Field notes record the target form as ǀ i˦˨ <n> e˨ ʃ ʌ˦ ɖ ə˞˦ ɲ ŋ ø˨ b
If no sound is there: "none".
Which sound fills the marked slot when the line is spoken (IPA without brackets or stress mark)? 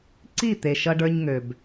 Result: t̪